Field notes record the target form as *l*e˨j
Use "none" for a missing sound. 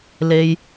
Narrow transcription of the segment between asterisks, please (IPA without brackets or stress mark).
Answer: l